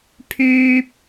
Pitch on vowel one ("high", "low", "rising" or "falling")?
high